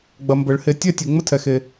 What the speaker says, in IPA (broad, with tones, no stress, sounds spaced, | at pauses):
ɡ͡b ɐ˨ m b ə˨˩˦ ɭ h e˨ tʲ ɛ˥˧ tʲ e˨ ŋ͡m ə˥˧ tʰ ɛ˨ x e˨